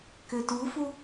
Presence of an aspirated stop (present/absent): absent